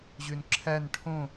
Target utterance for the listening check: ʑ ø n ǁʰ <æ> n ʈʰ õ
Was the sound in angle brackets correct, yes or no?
yes